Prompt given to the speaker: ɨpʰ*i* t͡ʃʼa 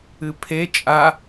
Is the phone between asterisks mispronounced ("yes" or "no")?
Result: yes